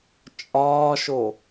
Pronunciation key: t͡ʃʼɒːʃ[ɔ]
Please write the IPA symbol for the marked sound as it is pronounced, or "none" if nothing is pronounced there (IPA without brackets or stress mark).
o